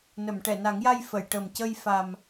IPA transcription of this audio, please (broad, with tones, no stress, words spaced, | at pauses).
nə˨˩˨mʈɛ˨˩˨na˨˩˦ŋja˧j fə˨˩˨jʈə˨˩m cə˧jfa˨˩m